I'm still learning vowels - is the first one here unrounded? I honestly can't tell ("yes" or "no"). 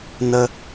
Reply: yes